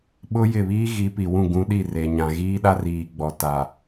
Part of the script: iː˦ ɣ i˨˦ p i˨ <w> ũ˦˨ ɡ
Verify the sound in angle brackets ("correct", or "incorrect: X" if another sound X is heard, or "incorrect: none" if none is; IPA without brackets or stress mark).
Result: correct